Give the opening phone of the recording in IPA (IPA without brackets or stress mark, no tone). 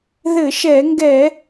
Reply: ð